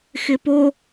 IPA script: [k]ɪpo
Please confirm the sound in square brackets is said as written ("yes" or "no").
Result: no